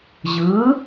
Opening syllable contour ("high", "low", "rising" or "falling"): rising